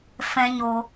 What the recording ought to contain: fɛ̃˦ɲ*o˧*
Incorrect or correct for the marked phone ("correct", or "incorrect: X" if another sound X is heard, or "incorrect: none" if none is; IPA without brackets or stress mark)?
correct